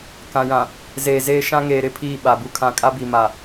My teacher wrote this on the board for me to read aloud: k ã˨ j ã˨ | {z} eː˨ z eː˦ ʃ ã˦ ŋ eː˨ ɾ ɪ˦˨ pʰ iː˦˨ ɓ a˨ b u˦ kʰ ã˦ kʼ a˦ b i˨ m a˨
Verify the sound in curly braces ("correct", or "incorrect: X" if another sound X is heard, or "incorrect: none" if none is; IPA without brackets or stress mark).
correct